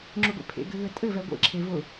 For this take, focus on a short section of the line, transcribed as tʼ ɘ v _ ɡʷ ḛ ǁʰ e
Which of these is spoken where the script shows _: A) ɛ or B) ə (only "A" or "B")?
A